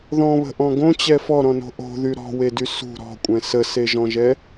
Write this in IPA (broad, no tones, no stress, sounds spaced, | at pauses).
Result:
ð ɔ̃ β ə̤ ʔ ɔ̃ ɡ õ t͡ɕ ɛ f ɔ ɾ ɔ̃ n o̤ ʔ o̤ ð y ɾ ɔ̤ w e d y s ṳ ɾ ɔ̤ kʷʼ ɛ̃ s ə s e ʒ ɔ̃ ʒ ɛ